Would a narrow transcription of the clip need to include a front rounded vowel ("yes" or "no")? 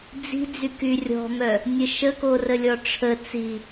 yes